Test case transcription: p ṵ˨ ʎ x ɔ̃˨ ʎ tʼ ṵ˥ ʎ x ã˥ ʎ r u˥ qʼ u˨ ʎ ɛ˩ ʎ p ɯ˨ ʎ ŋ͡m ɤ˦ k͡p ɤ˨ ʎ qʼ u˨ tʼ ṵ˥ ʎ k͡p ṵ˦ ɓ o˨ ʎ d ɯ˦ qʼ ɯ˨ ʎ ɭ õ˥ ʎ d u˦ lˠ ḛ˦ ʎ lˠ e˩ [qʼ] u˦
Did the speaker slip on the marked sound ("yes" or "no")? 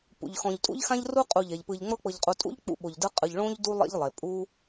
yes